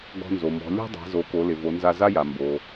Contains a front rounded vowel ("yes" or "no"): no